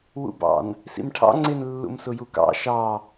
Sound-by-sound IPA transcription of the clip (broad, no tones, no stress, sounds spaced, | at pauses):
w ṵ b ɑ̰ n | s ḭ m ʈʰ ɑ̰ ŋ͡ǀ ɪ n lː ṵ m s ʊ j u k ɑ̰ ʃ ɑ